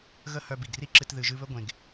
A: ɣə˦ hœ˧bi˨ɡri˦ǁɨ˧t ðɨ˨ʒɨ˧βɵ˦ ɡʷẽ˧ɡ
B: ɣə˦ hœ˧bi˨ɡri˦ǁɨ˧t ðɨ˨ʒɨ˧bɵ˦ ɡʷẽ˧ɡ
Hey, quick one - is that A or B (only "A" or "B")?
A